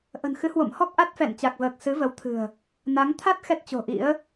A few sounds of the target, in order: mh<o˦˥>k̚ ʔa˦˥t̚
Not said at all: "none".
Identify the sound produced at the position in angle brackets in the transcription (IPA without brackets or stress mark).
ɔ˦˥